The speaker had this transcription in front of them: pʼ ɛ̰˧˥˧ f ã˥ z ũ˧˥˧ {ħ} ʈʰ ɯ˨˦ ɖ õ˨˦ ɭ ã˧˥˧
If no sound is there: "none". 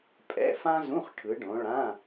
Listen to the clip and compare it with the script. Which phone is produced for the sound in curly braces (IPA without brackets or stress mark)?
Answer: χ